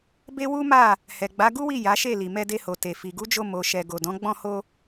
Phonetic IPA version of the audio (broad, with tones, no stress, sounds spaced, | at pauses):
b e˦ w u˦ m a˦˨ | h ɛ˨ ɡ͡b a˨˦ ɡ u˦ w i˦˨ j a˨˦ ʃ e˦˨ l i˨ m ɛ˧ d e˧ h o˨ t e˨ f i˨ ɡ u˨˦ d͡ʒ o˧ m o˨ ʃ ɛ˨ ɡ o˨ d ɔ̃˨˦ ɡ͡b ɔ̃˦˨ h o˧